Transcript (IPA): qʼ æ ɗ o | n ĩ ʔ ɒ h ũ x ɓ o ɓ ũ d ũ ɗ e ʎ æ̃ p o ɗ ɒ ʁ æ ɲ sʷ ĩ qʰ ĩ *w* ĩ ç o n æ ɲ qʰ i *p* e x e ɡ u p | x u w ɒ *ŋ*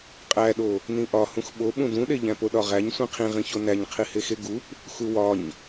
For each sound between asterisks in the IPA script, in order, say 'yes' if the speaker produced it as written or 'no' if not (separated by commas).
no, no, no